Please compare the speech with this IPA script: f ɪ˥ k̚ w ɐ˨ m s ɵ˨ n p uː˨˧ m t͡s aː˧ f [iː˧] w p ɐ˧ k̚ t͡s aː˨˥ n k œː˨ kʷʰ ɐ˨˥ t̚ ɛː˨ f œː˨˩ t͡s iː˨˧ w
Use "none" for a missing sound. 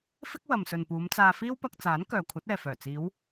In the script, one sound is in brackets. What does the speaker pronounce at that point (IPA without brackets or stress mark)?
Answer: iː˥